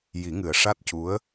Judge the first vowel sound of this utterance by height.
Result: high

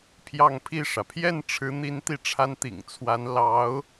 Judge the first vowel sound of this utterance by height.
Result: low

